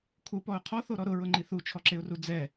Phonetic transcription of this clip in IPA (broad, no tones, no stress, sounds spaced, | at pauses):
kʰ u p ɔ ʊ̯ qʰ ɔ θ o ɾ ɔ ɾ ʊ ɹ ʊ ŋ͡ǃ i θ u t͡ʃʰ ɔ ǁ e ʊ̯ r u d͡z ɛ